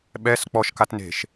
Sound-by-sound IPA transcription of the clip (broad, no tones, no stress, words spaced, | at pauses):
ɓɛs k͡pɔʃkatne̤ʃ